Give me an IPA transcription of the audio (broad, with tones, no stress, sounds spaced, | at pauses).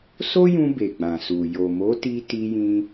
s o˦ j ũ˧ b e˨ ɡ͡b ã˨ s u˨ j o˨ m o˨˦ t i˧ t i˧ j ĩ˧